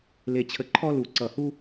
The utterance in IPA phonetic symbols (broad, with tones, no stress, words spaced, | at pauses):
le˦t͡ɕʰə˦ ǃʰɔ˦lu˧˩ǀʌ˧˩hu˦